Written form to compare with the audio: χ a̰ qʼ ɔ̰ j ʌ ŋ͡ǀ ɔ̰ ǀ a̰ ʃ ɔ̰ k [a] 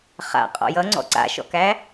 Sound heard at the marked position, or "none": æ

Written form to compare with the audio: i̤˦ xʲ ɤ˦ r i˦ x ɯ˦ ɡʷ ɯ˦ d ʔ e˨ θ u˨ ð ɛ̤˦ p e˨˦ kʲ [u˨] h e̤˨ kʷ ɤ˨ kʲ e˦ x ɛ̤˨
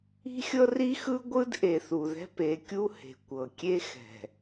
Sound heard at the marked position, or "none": u˦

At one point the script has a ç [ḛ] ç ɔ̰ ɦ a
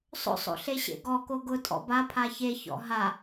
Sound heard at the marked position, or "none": e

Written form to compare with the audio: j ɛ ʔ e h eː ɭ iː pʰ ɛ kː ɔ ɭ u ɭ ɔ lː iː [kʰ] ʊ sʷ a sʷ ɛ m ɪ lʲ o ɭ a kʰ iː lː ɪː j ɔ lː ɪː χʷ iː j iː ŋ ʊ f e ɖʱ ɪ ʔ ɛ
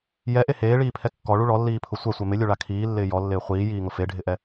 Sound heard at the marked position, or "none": pʰ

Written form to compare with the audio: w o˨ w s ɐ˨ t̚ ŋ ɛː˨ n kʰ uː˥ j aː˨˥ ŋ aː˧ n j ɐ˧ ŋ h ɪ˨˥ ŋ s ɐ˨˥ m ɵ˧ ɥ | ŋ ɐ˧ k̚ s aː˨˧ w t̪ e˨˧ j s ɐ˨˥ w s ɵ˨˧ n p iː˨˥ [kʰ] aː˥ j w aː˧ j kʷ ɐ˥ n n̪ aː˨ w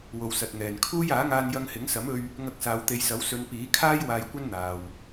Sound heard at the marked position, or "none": kʰ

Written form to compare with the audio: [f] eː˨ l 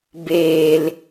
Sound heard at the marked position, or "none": b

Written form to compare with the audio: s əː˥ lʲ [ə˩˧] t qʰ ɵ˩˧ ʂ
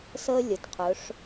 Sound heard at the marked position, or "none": ə˩˧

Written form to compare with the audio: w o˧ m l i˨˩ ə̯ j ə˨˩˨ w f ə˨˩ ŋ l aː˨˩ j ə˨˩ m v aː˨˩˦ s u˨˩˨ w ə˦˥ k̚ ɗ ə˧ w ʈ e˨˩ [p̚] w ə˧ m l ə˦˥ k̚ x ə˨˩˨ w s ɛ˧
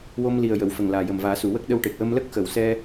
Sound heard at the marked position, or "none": k̚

